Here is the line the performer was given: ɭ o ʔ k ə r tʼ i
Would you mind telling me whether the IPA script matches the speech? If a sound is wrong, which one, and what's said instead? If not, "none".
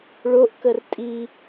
none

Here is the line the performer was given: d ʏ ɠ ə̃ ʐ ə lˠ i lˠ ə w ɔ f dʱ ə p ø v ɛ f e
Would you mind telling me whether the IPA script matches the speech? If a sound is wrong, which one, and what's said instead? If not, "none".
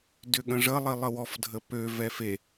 none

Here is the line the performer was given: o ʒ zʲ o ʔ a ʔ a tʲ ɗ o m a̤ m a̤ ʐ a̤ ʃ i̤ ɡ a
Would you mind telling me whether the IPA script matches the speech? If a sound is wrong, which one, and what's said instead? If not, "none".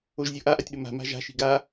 ʐ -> ʒ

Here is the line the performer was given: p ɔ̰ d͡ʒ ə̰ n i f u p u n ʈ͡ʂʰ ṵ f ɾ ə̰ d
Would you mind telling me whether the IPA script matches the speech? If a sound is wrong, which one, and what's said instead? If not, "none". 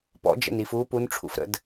none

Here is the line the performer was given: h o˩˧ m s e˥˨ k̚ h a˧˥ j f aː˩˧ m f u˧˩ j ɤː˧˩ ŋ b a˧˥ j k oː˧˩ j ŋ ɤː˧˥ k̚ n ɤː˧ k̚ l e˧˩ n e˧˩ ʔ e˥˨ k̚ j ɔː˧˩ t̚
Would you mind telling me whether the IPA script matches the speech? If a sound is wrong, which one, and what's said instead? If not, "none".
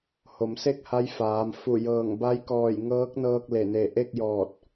oː˧˩ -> ɔː˧˩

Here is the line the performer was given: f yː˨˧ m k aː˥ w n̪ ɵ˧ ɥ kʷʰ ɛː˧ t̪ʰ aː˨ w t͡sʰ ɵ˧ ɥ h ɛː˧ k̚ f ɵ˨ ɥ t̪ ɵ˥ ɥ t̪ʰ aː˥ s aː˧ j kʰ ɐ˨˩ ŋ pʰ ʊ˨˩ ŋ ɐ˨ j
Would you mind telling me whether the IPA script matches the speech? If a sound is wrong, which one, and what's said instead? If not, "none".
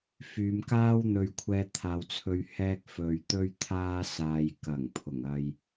kʰ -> k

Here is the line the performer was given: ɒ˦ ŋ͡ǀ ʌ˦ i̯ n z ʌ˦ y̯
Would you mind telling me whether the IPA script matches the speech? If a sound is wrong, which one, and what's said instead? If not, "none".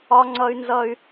i̯ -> y̯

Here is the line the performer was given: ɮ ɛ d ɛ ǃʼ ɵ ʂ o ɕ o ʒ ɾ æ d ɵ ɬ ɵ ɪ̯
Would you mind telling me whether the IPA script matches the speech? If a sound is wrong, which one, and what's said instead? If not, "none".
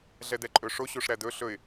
ʒ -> ʂ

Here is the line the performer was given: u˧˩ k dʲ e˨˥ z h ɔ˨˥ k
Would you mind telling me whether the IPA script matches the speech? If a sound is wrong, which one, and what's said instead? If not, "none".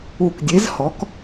none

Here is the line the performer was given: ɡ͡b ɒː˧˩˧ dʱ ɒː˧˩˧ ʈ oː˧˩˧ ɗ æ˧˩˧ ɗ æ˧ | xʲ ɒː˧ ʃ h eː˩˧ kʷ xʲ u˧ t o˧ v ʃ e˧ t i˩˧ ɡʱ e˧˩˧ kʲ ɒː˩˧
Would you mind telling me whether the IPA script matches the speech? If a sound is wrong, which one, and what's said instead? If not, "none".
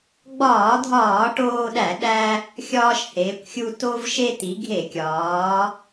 oː˧˩˧ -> oː˧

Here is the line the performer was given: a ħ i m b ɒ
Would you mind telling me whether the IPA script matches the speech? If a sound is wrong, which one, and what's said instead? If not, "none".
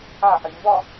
none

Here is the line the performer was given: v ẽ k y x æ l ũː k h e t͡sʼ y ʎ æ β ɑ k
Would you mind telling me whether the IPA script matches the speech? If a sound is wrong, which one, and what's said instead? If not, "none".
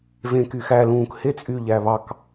none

